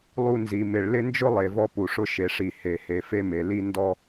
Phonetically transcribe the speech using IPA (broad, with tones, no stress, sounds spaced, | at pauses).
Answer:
lˠ u˧ n z i˩ m ɪ˩ ɭ l ɪ˥ n d͡ʒ ʊ˥ lˠ e˩ v ɔ˧ p u˩ ʂ ʊ˧ ʃ e˩ ʂ i˩ h e˩ h e˩ f e˧ m e˩ l i˧ n d ɔ˧